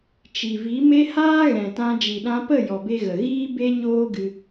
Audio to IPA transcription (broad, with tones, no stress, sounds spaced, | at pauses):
t͡ʃ i˨ v i˨˦ m e˦ h aː˦ ɣ ɛ̃˨ t ã˧ d͡ʒ i˨ ɗ ã˧ p ə˦˨ j ɔ˨ b e˧ ɣ ə˨ ɣ iː˦ b e˦ ɲ oː˦ ɡ ɨ˧